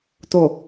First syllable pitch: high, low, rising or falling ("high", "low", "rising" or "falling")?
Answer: low